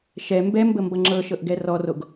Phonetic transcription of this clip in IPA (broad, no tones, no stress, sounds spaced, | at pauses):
ʃ ɛ m b ɛ m b ə m b ʌ ŋ͡ǁ ɤ ʃ ɤ ʔ ɡ ɛ r ɔ r o ɡ